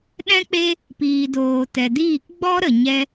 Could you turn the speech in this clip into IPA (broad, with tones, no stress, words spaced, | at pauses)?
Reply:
ɗɛ̃˦k͡pe˦ | piː˨doː˨ tɛ˨diː˦˨k ɡ͡bɔ˦ɾə˨ ɲɛ˧